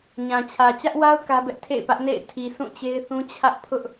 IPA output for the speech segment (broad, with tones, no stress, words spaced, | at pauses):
ɲã˨t͡ɕʰä˨ t͡ɕä˦ʔwa˦ʊ̯ kä˦bɛ˦ʔ tʰḛ˦˨ɪ̯pä˦ʔ nḛ˦˨ɪ̯tʰi˨ sũ˦˨t͡ɕe˦ɪ̯θũ˦ t͡ɕʰä˦ʔpʰʊ˦ʔ